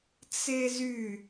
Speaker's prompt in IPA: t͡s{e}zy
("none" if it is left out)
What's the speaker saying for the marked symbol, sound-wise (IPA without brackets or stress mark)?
e